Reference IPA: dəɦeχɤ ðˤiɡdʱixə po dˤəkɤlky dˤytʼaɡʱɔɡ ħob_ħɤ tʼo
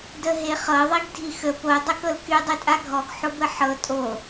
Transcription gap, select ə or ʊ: ə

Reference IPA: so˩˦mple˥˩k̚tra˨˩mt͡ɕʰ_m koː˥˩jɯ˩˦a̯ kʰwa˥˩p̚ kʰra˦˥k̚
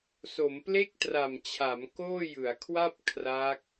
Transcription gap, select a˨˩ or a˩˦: a˩˦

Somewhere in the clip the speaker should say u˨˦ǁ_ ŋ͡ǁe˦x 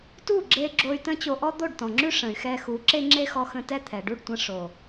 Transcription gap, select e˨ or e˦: e˦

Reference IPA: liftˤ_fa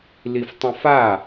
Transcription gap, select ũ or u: ũ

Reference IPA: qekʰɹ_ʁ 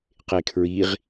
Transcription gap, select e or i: i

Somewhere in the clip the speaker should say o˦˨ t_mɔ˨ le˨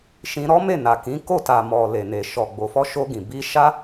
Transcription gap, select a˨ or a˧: a˨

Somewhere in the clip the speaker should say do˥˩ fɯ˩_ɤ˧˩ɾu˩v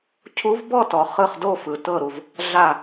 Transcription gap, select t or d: t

